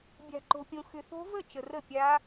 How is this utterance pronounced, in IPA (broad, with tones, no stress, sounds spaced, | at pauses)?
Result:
bʲ a̤˨ ǃ o̤˨ pʲ õ˨ x ʏ˨ θ o̤˦˥ v ə˥˩ t͡ʃ ə˨ r ə˥˩ pʲ a˦˥